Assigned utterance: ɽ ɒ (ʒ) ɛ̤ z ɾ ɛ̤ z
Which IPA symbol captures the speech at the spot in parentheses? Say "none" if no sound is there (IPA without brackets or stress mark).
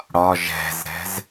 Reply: ʒ